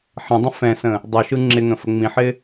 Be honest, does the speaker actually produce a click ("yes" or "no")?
yes